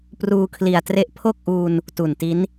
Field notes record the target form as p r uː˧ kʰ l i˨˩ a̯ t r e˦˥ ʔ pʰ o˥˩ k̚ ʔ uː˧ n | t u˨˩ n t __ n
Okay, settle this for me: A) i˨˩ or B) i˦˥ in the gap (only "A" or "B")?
B